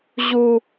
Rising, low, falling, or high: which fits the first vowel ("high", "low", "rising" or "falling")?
high